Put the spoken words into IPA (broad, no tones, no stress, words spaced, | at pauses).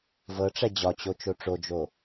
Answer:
vɤʈ͡ʂɛ d͡ʑɒt͡ɕo t͡ʃoʈ͡ʂod͡ʒo